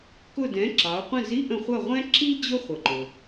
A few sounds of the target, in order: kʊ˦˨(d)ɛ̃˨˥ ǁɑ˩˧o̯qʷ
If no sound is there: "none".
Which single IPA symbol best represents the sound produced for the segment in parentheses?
d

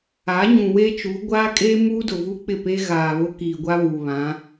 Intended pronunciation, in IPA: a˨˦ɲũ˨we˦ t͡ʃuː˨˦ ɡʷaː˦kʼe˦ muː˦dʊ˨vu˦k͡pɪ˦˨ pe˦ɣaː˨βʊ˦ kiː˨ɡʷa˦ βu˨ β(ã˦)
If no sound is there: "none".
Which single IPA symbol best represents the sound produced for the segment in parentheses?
ã˨˦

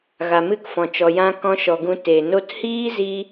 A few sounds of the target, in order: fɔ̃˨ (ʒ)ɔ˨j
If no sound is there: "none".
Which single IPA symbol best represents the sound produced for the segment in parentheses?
t͡ʃ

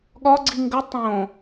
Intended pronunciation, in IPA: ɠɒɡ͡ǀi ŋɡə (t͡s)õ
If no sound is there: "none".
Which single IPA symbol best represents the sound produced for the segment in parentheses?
tˤ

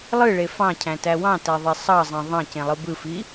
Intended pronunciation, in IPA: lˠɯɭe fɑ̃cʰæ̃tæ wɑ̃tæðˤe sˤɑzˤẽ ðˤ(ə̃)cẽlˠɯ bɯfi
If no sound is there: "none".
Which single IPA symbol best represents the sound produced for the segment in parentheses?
ɑ̃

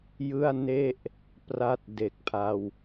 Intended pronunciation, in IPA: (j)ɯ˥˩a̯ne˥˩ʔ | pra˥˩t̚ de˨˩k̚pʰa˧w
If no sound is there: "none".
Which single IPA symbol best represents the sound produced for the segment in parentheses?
j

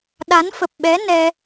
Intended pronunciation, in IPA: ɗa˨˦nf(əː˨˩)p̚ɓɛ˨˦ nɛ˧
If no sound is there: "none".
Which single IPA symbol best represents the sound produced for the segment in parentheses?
ə˨˩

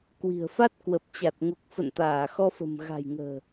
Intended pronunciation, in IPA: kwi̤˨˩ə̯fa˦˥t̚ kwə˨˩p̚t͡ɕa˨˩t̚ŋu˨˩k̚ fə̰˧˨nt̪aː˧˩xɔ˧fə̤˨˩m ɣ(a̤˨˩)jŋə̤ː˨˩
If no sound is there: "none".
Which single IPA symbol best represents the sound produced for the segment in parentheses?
a̤˨˩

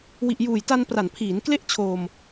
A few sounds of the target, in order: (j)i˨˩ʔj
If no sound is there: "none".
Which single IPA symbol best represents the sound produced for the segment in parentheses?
w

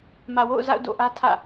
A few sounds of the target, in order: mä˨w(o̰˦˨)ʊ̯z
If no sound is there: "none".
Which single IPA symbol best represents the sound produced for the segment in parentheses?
o̰˦˨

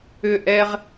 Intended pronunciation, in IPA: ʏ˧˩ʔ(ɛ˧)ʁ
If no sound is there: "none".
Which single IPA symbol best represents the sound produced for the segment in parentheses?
ɛ˧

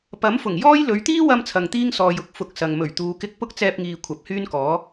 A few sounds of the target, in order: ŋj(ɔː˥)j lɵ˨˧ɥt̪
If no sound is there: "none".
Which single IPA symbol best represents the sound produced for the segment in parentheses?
ɔː˥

